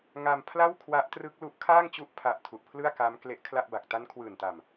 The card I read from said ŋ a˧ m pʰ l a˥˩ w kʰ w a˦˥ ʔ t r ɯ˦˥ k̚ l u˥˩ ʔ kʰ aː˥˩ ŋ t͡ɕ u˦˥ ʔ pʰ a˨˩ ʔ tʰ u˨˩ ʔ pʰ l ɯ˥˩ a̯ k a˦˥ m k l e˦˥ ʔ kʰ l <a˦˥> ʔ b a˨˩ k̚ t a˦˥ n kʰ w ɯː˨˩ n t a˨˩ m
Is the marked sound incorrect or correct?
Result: incorrect